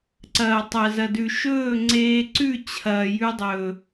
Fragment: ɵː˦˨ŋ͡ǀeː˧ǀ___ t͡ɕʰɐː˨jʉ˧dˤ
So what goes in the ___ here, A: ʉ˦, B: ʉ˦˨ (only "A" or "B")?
B